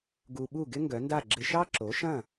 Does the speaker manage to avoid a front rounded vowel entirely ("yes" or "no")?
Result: no